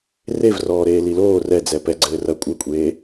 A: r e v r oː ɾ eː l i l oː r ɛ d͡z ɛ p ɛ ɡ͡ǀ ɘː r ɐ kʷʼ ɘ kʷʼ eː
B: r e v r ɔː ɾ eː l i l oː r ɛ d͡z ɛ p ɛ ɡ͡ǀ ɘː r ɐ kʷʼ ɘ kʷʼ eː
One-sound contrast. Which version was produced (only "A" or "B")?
B